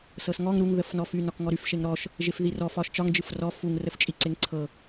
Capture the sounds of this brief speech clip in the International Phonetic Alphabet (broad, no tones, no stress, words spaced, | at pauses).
sɤsŋɔŋ ɾuŋ ðəfnɔfy nɒkŋɔɾyf ʃeŋɾɔʃ | ʒefðirɔ fɒʃt͡ʃɒŋ d͡ʒɯfrɔ fuŋ rəft͡ʃʼiǀeŋǀʰɤ